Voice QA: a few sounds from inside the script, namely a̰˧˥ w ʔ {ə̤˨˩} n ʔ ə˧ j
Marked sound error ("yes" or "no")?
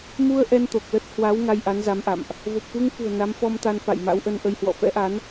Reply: yes